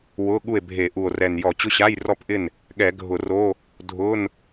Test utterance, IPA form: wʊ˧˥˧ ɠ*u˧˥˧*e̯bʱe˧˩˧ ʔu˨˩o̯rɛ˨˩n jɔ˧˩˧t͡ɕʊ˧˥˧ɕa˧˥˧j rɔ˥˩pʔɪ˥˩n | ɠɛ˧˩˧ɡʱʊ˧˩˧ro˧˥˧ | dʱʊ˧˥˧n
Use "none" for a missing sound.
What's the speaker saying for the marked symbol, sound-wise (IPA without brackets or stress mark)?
u˥˩